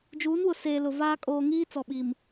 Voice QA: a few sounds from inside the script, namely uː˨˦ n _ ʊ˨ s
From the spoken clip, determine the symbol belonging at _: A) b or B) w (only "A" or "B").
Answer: B